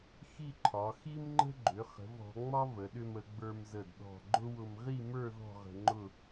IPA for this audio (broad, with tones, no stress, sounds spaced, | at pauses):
x i˥˧ ǃʰ ɒ˩˧ x i˥ m ŋ͡ǃ ə̤˥ ɡ͡ǃ ʏ˩˧ χ ə̤˩˧ v ɔ̤˩˧ ŋ͡m ɒ˥ v ə˩˧ ɗ ʏ˧ m ə˩˧ ɡ͡b ə˞˧ m z ə˧˩ d ɗ ɔ̤˧˩ ɡ͡ǃ ʊ˥ w ʊ˧ m ʁ i˥˧ m ə˞˥˧ ð ɔ̤˥˧ ʁ ə̤˧ ŋ͡ǃ ʊ˥˧